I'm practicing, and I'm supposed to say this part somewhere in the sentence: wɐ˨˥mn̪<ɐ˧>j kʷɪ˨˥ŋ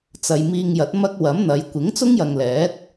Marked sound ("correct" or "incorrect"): incorrect